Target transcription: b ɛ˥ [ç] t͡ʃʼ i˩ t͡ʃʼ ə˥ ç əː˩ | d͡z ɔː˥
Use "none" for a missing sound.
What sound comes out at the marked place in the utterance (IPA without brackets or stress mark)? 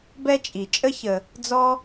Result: none